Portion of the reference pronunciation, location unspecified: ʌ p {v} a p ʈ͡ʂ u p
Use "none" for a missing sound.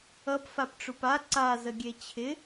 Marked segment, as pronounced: f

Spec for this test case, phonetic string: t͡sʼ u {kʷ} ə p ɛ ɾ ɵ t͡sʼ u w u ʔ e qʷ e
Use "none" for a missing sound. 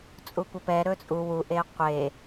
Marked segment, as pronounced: kʷ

